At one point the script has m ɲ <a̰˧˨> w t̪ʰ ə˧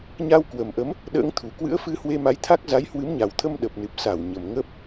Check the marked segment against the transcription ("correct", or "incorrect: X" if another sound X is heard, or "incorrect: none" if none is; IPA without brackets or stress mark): incorrect: a˨˩